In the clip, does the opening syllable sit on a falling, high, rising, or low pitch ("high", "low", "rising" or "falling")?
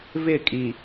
falling